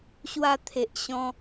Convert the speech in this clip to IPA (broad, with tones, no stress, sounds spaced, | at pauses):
ɕ w a˧ t̪ʰ e˨ ʔ ɕ ɔ̃˧